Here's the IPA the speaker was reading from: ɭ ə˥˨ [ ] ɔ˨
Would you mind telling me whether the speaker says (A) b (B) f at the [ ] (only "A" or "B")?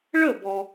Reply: A